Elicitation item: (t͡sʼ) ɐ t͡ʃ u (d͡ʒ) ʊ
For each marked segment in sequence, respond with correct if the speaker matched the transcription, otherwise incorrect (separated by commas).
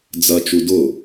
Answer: incorrect, incorrect